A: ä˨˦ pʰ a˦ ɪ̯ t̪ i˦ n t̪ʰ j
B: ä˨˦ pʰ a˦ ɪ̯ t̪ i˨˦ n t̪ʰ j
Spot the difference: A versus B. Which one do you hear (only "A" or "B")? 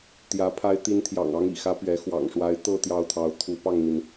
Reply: A